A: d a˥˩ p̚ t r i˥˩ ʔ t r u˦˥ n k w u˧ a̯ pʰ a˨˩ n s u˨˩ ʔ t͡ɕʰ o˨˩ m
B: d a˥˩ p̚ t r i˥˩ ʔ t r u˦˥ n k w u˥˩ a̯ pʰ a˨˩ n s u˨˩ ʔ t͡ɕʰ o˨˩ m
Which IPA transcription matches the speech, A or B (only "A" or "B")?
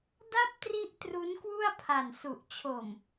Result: B